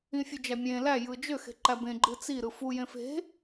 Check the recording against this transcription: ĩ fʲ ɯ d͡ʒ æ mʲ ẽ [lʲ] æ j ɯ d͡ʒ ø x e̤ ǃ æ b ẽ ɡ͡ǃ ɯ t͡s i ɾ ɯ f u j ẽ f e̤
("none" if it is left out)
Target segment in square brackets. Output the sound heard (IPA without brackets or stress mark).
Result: l